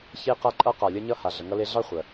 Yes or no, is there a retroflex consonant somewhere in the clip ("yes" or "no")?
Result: no